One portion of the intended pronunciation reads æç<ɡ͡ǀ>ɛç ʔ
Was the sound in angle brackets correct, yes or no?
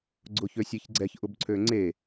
yes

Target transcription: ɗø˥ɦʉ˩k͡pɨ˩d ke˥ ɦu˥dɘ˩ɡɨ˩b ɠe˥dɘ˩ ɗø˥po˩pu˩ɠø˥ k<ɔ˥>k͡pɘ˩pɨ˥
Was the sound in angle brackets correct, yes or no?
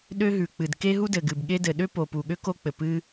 no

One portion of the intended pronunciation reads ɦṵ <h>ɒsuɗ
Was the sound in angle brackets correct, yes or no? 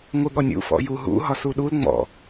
no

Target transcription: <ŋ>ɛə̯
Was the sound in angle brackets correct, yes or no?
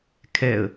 no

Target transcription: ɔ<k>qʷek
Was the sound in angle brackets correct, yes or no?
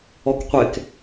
yes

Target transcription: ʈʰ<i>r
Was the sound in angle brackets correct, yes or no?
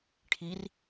yes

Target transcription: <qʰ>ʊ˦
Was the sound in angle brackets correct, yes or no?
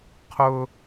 yes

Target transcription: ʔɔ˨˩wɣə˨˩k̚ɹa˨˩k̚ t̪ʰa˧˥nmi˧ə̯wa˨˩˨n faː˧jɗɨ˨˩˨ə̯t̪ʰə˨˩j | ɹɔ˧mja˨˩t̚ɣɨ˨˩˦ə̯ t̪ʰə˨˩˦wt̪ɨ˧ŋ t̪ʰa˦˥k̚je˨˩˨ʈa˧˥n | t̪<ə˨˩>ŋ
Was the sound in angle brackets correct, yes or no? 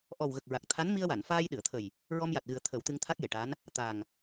no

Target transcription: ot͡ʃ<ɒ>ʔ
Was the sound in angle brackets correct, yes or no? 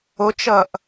no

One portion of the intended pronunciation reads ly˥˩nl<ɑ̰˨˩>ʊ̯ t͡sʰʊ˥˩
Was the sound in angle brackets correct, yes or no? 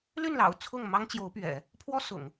yes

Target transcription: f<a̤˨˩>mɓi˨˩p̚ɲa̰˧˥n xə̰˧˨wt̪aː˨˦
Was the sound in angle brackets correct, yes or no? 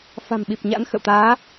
yes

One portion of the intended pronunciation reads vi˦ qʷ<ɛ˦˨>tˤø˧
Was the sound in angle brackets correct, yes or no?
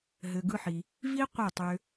yes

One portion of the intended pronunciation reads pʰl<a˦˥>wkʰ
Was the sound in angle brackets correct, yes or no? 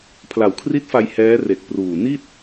no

